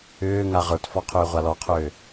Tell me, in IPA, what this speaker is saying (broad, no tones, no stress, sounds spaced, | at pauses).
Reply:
ʏː ŋ a ʁ ə˞ t f ɔ qʰ ʏː ʁʷ a l ɔ qʰ ʏː